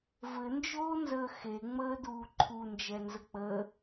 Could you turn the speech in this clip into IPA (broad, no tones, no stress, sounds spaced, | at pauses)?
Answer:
v ɘ n d͡ʒ oː n z əː x e ŋ͡m əː d uː ǃʰ u n d͡ʒ ɛ n z ə k͡p əː